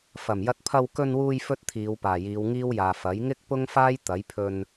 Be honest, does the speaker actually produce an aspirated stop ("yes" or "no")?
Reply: yes